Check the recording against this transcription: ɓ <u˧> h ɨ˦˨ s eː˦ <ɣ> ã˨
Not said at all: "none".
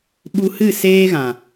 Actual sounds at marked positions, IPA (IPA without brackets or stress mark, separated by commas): u˧, ɣ